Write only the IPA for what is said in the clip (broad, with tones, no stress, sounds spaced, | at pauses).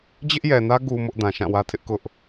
d͡ʑ ɪ˦ ʔ j ɛ˨ n ä˦ ɡ u˨ m ʊ˦ ʔ d ã˨ ʃ ã˦˨ w ä˦ tʰ ɪ˦ ʔ k ʊ˦ ʔ